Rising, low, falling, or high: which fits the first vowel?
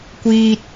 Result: low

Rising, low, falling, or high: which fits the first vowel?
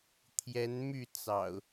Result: rising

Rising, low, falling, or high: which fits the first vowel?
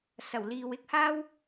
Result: low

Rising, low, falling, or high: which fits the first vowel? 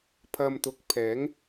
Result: low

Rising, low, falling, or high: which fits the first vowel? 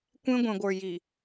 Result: high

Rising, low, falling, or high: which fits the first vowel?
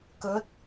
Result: rising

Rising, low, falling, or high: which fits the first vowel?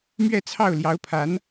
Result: falling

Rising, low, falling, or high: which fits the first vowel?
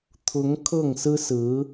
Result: rising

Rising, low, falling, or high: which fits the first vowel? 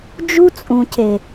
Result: high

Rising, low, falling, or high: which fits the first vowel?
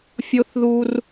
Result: high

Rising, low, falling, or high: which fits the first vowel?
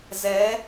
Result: rising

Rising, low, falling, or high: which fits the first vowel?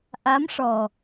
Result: rising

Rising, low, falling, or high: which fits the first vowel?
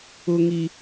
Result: high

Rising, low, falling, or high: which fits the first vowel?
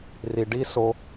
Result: low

